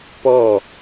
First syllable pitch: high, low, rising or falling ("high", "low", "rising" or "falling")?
falling